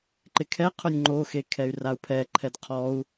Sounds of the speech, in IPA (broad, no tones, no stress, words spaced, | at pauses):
ǃɪkʰɛqʰʊnʲ ŋ͡ǃoxe kʰɛy̯rau̯pʰɛǃʰɛd qʰɔu̯